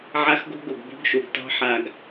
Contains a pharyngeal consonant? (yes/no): yes